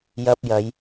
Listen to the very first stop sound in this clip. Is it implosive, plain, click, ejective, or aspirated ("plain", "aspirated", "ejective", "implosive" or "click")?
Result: plain